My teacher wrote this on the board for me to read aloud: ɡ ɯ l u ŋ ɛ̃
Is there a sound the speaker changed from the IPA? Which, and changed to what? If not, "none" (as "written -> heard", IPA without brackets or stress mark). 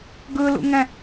u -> ṵ